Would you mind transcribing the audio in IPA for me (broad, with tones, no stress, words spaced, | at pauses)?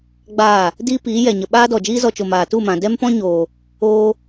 ɡ͡baː˦˨ | diː˦piː˨˦ jɛ˨ɲə˨ɓaː˦dɔ˨ d͡ʒiː˦zɔ˧t͡ʃo˨ maː˨ tu˦˨mã˨ dɛ˦mpɔ̃˦ɲoː˨ | oː˦